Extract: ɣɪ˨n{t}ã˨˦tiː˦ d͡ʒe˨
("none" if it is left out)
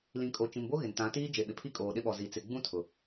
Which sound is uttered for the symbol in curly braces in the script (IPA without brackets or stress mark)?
t